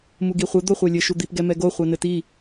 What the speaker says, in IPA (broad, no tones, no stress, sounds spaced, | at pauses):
m u ɡ i χʷ ɘ d̪ o χʷ ɛ lʲ ɘ ʃ u d̪ i p ɡ ɛ m ɛ ɡ o χʷ ɛ n ɘ t i